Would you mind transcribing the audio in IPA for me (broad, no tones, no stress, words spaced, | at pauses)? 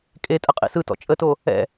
kʼetʼə qʼḭsɯtɔ̰ t͡ʃʼəto | ɛ̰